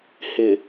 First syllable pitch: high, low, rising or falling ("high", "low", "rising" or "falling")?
low